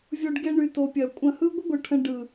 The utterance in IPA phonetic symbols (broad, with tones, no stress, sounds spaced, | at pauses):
vʲ o˧ ɖ ɡ e˧ ɳ y˨ t o˨ pʲ ɐ˨ kʷʼ ɐ̃˧ h ɯ˦ ɡʷ ɘ˦ ɡʷ ɯ˨ ʈʰ ə̃˧ ɖ ɯ˨